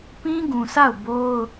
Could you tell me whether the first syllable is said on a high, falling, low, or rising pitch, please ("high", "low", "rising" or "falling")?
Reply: high